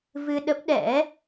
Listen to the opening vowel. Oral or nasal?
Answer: oral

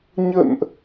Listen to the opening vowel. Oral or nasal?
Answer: oral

